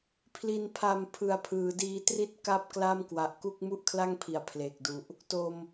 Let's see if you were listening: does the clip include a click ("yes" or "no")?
no